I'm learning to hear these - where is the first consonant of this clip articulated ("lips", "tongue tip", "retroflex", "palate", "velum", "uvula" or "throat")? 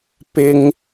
lips